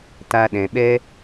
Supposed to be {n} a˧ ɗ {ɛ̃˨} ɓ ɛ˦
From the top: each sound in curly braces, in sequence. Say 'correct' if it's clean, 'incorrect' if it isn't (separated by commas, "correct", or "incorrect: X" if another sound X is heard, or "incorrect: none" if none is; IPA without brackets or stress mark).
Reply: incorrect: t, correct